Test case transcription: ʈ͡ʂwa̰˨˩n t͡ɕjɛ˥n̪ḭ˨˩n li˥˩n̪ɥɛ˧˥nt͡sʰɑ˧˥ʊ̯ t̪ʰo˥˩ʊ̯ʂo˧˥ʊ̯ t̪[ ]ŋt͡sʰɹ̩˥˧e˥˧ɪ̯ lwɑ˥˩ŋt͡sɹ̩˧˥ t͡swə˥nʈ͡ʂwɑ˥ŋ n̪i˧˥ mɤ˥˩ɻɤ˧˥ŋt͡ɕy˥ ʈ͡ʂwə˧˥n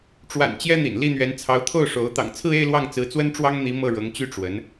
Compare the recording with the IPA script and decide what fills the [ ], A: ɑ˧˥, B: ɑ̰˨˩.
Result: B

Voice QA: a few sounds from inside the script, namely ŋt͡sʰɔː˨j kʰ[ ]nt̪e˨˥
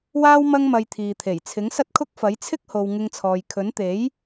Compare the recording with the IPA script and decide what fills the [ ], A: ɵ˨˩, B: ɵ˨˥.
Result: B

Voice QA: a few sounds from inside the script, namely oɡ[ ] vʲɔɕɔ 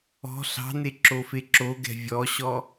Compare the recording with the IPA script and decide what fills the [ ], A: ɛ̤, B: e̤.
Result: A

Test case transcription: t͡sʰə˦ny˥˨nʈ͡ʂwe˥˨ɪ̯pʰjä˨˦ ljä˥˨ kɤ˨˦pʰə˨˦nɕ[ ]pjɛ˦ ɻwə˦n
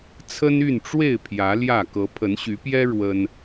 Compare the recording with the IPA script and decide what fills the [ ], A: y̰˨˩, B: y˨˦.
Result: B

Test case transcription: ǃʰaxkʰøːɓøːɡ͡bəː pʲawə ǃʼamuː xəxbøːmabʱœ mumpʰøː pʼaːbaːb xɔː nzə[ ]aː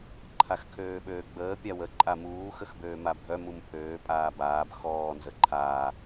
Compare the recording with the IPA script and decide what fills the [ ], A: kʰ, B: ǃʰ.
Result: B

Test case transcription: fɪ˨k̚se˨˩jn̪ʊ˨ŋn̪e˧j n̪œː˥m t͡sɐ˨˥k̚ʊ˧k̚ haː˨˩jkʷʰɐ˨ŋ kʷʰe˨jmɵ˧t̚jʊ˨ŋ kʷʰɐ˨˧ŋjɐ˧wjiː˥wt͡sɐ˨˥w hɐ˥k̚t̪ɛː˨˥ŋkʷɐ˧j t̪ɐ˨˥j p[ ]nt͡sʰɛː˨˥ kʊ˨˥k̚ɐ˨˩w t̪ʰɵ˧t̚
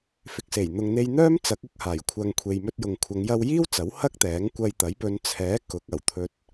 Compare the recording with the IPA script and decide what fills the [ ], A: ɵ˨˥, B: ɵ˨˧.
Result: B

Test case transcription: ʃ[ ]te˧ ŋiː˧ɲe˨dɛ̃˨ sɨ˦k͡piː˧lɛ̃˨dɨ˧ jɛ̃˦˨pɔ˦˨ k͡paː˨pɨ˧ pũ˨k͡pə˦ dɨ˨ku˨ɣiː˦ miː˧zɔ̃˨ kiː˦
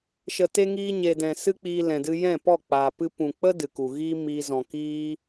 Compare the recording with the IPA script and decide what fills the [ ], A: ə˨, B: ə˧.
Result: A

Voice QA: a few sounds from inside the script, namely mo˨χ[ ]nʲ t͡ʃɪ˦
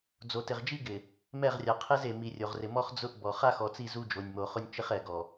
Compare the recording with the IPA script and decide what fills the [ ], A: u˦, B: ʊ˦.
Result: B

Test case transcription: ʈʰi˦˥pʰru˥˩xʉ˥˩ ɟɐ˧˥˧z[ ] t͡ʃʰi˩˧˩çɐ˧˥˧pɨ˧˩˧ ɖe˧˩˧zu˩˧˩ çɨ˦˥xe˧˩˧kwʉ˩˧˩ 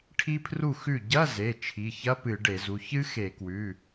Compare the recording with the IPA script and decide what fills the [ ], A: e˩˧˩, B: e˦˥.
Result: A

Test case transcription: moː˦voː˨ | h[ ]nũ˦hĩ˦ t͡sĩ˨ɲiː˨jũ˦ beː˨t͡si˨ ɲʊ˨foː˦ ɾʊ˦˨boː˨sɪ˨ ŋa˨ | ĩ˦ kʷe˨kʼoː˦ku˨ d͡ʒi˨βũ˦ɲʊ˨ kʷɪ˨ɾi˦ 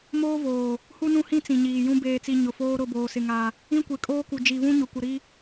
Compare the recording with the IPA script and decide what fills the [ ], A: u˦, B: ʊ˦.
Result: A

